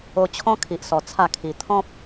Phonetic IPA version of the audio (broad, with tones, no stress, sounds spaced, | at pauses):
o˧ t͡ɕʰ ɔ̃˦ kʰ i˨ ʔ s ɔ˨˩ t͡sʰ a˥˧ kʰ i˧ t̪ʰ ɔ̃˦ p̚